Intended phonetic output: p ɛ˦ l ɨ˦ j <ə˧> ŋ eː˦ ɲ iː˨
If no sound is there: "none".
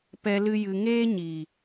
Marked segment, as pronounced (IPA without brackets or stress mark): ɨ˧